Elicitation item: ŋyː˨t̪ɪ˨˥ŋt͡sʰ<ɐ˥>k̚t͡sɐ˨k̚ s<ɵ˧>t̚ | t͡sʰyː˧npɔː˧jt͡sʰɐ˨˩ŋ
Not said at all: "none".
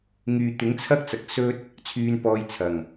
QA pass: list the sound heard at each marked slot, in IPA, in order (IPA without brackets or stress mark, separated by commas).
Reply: ɐ˥, ɵ˥